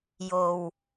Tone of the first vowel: low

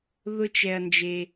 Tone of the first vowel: high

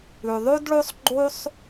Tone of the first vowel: low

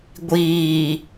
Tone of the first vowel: low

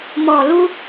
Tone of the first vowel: low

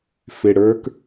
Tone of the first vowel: low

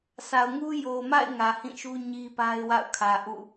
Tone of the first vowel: low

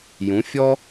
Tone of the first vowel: rising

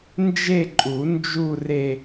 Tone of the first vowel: falling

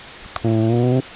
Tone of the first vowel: rising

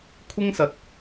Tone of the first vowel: high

